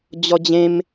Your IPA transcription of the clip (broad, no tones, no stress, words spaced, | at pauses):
d͡ʑɔd͡ʑẽm